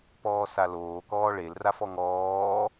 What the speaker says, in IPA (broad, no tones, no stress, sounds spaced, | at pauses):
p ɔː s a l oː k ɔː ɭ e l r a f ɔ ŋ ɔː